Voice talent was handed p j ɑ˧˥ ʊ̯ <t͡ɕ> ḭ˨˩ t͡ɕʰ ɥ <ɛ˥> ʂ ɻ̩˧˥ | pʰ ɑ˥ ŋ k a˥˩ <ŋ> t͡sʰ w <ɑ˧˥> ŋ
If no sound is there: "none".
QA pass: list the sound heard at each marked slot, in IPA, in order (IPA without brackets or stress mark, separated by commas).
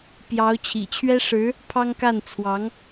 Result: t͡ɕʰ, ɛ˥, n, ɑ˧˥